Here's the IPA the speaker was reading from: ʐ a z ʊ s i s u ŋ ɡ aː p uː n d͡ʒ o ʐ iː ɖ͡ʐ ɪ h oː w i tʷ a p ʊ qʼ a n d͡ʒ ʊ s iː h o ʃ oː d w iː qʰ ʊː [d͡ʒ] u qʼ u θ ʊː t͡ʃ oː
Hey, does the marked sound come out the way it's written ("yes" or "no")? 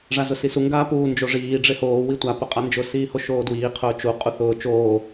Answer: no